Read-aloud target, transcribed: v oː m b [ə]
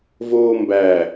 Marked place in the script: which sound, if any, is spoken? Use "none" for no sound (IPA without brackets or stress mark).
æ